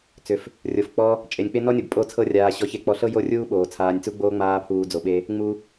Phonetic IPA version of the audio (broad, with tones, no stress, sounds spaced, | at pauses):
t͡s ʏ˨ f | rʲ o˨ f k͡p ɔ˧ | t͡ʃʼ e˨ nʲ k͡p e˦ n ɔ˦ nʲ o˨ b pʼ o˦˨ t͡sʰ ɤ˦ rʲ aː˧ ɕ ɔ˧ ç e˧ k͡p ɔ˧ ɬ ɤ˦ j o˦˨ rʲ uː˦ ɓ oː˨ t͡sʰ aː˨ nʲ t͡s u˧ ɡ͡b oː˧ ŋ͡m aː˧ pʰ uː˨ d͡z o˨ ɓ e˧ | ŋ͡m u˧